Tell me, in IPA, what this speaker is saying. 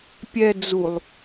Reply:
pʲ ɛ d͡z u lˠ

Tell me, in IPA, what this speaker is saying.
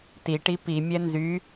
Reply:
t i ʈ i p i mʲ ɛ n z y

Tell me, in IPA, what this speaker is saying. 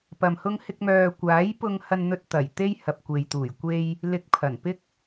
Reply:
p ɐ˧ m h ʊ˥ ŋ h ɪ˥ k̚ m œː˧ kʷ aː˨˥ j p ʊ˧ ŋ h ɐ˧ n n̪ ɵ˧ t̚ t̪ ɐ˨˩ j t̪ e˥ j h ɐ˨ p̚ kʷ e˨ j t̪ uː˨˩ j kʷ e˧ j | l ɪ˧ k̚ pʰ ɐ˨˩ n p ɪ˥ k̚

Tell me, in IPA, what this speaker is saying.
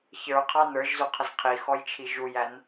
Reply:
ç ə˞ qʰ ɑ n ə˞ ʒ z u qʰ ə z qʰ i x ɔ j t͡ʃʰ i ʒ u j æ n

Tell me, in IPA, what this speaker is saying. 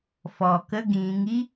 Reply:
f ɔː˩ k ə˧˥˧ ɡ ĩː˩˧ ŋ i˥

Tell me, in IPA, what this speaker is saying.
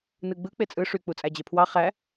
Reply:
n ɯ ɡ͡b ɯ k͡p e t͡sʼ ɯ ʂ y k͡p u t͡sʼ æ d͡ʑ e pʰ w ɑ χ æ

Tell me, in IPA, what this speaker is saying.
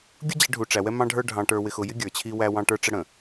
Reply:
ɡʲ ʊ˦ d͡ʑ ɛ˨˦ ɖʱ u˨ ʈ͡ʂ æ˨ w ɛ˦ m ɑ̃˦ ɖʱ ə˞˦ ɖʱ ɑ̃˨ ʈ ə˞˨ w ɪ˨ x ʊ˨ j ɪ˦ ɡʲ ə˞˨ t͡ɕʰ i˦ w æ˦ w ɑ̃˦ ʈ ə˞˦ ʈ͡ʂ ə˦ ɽ ə̃˨

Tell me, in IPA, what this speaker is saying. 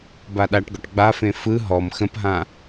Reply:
b a ɗ a ʈ ɡ ɔ ʈ ɡ͡b a f ẽ f ɯ ɦ ɔ m x ə̃ p ɦ ã

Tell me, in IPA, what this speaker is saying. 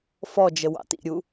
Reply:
f ɔ d͡ʒ ə w ɑ̰ t ḭ ɾʲ u

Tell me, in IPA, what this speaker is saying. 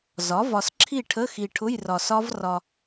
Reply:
z ɒ˩˥ v ɒ˨ s ǁʰ i˥˨ ʈʰ ə˧˥˧ x i˨ ʈʰ ʊ˧˥˧ j r ɒ˨ s ɒ˦˥ v r ɒ˨

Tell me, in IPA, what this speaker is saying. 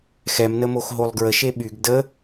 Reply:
x ɛ m n ə m o x ɦ o lˠ ɡ ɹ ə ʃ e ɓ y ɡ d ə

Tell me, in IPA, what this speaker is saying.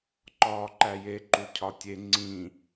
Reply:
ǃ ɒː ǃ æ j e ǃ u cʰ ɒ tʲ e ŋ͡ǀ ĩː

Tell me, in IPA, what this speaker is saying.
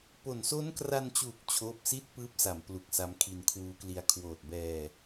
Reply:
p o˨˩ n s o˦˥ n k r a˧ n t͡ɕ uː˨˩ k̚ t͡ɕʰ oː˥˩ p̚ s i˥˩ t̚ p ɯː˦˥ p̚ s a˩˦ m p l u˨˩ k̚ s a˦˥ m kʰ i˧ n kʰ w uː˦˥ k l i˧ a̯ kʰ w oː˨˩ t̚ b ɛː˧

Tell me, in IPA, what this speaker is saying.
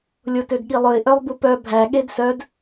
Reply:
lʲ o t ø d ɠ i lˠ ɵ ɪ̯ ʔ œ lˠ b u p œ bʱ æ ɠ e d s œ d

